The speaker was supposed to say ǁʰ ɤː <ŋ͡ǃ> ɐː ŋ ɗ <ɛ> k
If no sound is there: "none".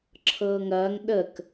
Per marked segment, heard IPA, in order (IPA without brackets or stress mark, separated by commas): ŋ, ə